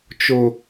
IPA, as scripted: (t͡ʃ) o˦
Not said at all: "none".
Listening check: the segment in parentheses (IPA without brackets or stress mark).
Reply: t͡ʃ